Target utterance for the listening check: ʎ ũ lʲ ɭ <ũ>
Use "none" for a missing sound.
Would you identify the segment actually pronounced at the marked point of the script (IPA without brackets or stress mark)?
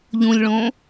õ